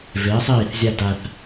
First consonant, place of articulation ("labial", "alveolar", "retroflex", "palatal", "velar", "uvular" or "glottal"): labial